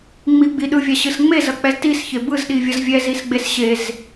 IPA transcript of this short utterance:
ŋ͡m i ɡ͡b i ɗ ɯ vʲ a ɕ ɯ s ŋ͡m e z ʌ k͡p ɛ z t i s ç e b ɯ z ɗ i vʲ ʌ z vʲ ɛ z i s ɡ͡b e s ɕ e z

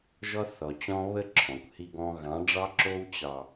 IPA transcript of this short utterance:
ʒ ɔ˦ θ ɔ˨ t͡ɕ ɔ̃˦ β ə˦ ǁʰ ɔ̃˨ kʷ h i˦ ɡ ɔ̃˦ ɣ ɑ̃˨˦ ɖ͡ʐ ɑ˦ ǁ o˦ w t͡ɕ ɑ˨

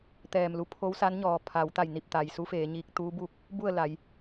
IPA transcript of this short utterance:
t̪ ɛː˧˩ m l u˧ pʰ o˧˥ w s a˧˥ n ɲ ɔː˩ pʰ a˩˧ w t̪ a˧˩ j n i˧˩ p̚ t̪ a˩ j s u˧˥ f eː˩˧ ɲ iː˧ k̚ t̪ uː˧˥ b u˧ k̚ | b u˥˨ ə̯ l a˩˧ j

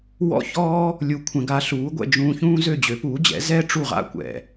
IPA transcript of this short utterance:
w ɔ̰˥ ç ɔː˥ | lʲ u˧ kʷʰ ɛ̃˧ ɡ a˧ ɬ uː˩˥ ɡʷ ɛ̰˧ d͡ʒ ũː˧ ç ũː˥ z ø˥˩ d͡ʑ ø˩˥ p uː˩˥ d͡ʑ ɛ̰˩˥ z ɛː˥ ʈ͡ʂ u˥˩ ʁ a̰˥ kʷ ɛ̰˩

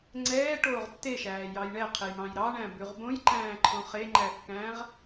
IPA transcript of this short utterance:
ŋ͡ǀ ɛː ʈ oː ʁ tː e ʃ æː j ɑ j ɳ ɛ qʰ e j m ɑ̃ j ɾ ɑ ɳ æ̃ b ʉ ʁ b õ j ǃ æ̃ː ǃʰ õ χ e ŋ͡ǃ æ kː æ̃ː ʁ

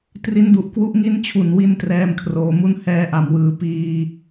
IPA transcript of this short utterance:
t r i˦˥ n d u˨˩ ʔ k w u˦˥ ʔ ŋ i˦˥ n t͡ɕʰ u˨˩ n w i˧ n t r ɛː˥˩ m kʰ r oː˧ m u˦˥ n h ɛː˦˥ ʔ a˩˦ m w ɯː˩˦ p iː˧

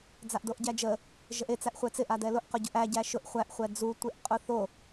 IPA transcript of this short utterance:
d͡z a ʔ d o ʔ ɟ æ d͡ʒ ə | ʒ ə ʔ e t͡s æ ʔ χʷ ɛ t͡s ɪ ʔ a d ɛ l ʊ ʔ q ʊ ɟ ʊ ʔ æ ɟ æ ʃ ʊ ʔ χʷ æ ʔ χʷ ɛ d͡z u tʷ e ʔ qʼ ʊ θ o

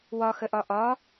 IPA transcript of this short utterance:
w ɒ x ə ʔ ɒ ʔ ɒ

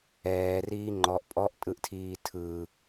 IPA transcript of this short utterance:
ɛː r iː ŋ͡ǃ ɔ ʔ pʼ ɔ ʔ tʼ ɯ ʔ tʰ iː tʰ ɯ

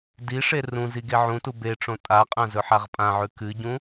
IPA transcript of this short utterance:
d i ʂ e r ũ z i ɡ e ʕ ũ t u b e ʈ͡ʂ õ tʼ a qʼ ã z ɵ ħ a ʁ pʼ ã ʕ ʉ k ɨ ɟ ũ

